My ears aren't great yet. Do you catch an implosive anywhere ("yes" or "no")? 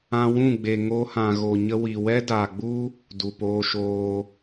no